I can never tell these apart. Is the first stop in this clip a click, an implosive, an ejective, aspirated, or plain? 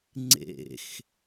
click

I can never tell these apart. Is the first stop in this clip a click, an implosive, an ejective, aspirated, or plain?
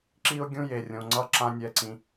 click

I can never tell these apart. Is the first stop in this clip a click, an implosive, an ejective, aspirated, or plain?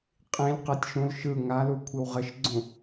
ejective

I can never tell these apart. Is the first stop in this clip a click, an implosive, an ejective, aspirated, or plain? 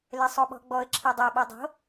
implosive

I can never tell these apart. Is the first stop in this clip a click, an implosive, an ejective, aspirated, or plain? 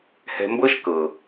plain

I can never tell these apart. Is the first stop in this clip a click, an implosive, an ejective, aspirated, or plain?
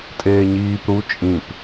ejective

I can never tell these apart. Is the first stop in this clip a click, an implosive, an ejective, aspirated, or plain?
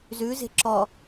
click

